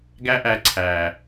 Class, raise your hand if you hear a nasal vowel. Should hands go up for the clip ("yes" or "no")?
no